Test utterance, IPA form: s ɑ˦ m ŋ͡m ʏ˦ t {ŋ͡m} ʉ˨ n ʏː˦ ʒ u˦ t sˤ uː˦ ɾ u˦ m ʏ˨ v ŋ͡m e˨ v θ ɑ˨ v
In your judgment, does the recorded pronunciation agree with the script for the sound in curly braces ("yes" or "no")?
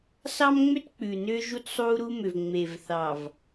no